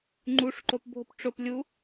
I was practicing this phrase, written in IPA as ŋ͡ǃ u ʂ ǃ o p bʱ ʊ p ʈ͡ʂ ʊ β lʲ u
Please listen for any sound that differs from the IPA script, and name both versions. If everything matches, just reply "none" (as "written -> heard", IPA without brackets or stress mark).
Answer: β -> p